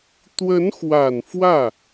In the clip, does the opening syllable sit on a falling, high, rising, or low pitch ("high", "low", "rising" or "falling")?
rising